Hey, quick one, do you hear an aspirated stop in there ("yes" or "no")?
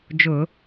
no